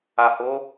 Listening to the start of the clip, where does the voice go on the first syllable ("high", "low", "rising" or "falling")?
low